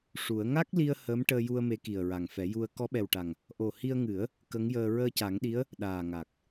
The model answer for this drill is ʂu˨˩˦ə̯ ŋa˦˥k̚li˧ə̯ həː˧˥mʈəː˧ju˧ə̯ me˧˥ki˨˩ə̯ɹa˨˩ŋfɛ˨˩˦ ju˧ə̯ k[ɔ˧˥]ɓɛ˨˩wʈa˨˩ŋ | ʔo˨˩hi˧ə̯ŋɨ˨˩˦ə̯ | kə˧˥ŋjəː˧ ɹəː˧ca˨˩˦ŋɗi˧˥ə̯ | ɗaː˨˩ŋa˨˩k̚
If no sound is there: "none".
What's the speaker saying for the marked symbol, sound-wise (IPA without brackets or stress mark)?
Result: ɔ˧˥